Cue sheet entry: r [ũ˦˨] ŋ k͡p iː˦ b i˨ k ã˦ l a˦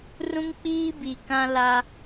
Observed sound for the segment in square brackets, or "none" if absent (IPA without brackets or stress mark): ũ˦